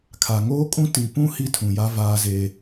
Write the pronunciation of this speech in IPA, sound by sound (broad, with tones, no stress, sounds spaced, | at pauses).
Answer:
kʰ a˨ ŋ oː˦ kʼ ũ˦ t i˨ p ũ˦ h i˦ tʰ ũ˨ j a˦ v aː˦ z e˦